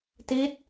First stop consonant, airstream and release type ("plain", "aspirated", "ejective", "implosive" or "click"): plain